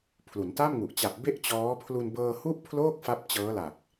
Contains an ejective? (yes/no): no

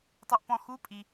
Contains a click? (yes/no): no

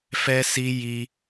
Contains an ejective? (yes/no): no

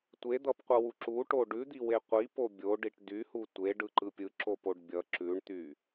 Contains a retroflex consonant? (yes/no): yes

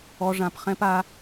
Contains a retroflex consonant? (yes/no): yes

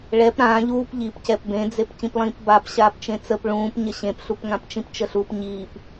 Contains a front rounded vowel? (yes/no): no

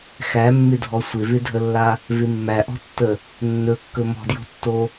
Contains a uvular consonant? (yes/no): no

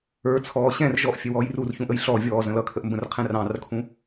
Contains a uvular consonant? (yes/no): yes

